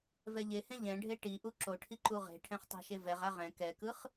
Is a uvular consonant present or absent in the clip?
present